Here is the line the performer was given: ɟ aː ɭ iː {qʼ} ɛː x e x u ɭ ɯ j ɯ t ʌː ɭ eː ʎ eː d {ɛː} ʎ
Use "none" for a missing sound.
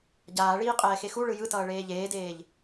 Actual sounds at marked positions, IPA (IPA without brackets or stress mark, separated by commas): qʼ, eː